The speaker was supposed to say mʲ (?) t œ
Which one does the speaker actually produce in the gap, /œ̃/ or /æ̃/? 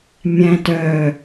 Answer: æ̃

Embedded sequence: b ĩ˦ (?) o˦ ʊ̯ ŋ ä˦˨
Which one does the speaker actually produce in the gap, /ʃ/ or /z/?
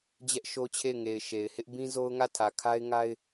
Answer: z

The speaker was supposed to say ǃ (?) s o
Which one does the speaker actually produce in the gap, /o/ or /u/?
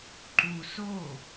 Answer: u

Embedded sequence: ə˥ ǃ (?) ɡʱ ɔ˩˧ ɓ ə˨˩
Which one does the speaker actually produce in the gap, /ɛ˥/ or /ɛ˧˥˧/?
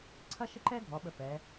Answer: ɛ˥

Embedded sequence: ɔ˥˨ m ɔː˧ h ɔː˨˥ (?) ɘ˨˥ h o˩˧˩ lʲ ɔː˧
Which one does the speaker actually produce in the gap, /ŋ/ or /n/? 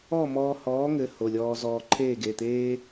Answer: ŋ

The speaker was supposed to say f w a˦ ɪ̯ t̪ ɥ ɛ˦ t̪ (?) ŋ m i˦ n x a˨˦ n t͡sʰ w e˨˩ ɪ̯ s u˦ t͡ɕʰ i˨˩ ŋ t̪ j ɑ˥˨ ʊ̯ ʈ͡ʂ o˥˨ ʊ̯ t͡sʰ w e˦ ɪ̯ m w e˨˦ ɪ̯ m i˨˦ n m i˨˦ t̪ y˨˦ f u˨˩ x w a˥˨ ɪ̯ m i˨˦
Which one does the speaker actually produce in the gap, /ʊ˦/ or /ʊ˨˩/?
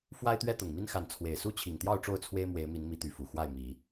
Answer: ʊ˨˩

